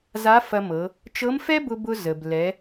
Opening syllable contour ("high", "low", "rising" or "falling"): rising